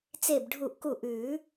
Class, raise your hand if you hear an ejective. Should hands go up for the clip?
no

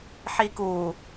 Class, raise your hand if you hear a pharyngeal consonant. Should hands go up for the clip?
yes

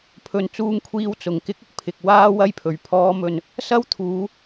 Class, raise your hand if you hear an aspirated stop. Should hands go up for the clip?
yes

